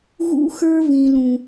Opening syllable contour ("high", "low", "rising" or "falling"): high